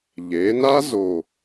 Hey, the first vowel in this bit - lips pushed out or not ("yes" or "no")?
no